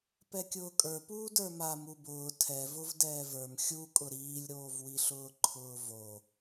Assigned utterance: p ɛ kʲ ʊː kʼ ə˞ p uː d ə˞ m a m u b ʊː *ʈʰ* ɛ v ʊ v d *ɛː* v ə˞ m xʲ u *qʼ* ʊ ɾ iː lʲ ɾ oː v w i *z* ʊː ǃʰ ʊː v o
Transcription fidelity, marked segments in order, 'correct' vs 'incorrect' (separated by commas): incorrect, correct, incorrect, incorrect